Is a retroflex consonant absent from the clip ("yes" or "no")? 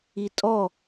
yes